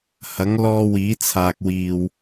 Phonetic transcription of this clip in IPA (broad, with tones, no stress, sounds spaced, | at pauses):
h ɐ˨˥ ŋ l ɔː˧ w iː˨˥ t͡sʰ aː˨ k̚ w iː˨ w